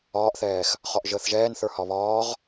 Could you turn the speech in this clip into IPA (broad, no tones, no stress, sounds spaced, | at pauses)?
ɒː ʔ θ ɛː x | χ ɒ ʔ ʒ əː θ ʒ ɛː n θ ə˞ h ɒ β ɒː ʁ